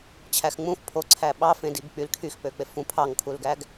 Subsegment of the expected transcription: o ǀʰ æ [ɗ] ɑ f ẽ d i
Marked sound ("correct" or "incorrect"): incorrect